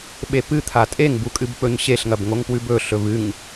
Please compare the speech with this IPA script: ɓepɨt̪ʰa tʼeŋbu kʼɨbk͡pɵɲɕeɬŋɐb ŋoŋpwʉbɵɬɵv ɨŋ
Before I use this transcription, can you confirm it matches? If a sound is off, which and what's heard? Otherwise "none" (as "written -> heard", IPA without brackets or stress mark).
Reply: none